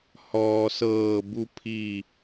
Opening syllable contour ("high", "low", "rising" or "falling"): low